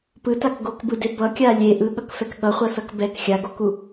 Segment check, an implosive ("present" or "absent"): present